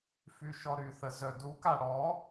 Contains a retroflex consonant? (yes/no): yes